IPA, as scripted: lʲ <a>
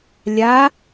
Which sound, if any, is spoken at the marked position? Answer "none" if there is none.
a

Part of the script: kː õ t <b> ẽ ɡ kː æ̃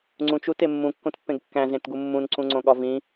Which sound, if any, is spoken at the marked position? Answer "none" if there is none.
pː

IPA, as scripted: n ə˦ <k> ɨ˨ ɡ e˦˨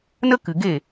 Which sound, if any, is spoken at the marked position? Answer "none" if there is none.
k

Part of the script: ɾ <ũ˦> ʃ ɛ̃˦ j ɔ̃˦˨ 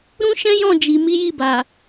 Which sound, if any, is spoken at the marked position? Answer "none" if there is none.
ũ˦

